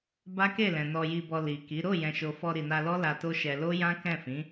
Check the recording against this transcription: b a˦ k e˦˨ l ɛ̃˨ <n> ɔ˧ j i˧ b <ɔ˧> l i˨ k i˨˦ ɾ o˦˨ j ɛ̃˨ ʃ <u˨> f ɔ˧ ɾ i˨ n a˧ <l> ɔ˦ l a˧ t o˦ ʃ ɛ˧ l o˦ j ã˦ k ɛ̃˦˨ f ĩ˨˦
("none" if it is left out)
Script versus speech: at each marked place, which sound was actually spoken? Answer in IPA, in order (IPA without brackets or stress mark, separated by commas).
n, ɔ˧, o˨, l